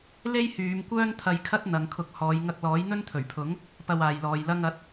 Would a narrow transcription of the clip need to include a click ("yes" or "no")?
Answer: no